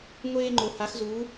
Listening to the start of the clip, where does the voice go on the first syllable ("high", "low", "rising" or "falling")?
high